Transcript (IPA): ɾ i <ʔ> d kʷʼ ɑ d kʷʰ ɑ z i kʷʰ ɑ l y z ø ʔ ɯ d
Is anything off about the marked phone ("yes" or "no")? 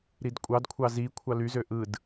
yes